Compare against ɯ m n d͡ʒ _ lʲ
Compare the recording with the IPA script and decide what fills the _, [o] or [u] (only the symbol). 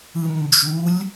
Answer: u